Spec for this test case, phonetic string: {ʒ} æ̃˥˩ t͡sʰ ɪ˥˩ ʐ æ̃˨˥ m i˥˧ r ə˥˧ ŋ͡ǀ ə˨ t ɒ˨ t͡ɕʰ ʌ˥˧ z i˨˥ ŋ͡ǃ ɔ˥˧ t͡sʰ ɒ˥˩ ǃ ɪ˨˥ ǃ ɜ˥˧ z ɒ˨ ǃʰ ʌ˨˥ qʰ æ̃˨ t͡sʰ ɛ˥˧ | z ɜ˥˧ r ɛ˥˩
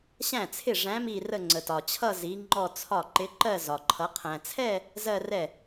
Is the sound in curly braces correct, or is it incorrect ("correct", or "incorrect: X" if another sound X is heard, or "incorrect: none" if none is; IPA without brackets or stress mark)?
incorrect: ɕ